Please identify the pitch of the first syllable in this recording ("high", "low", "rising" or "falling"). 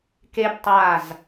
high